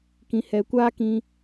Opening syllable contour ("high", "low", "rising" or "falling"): low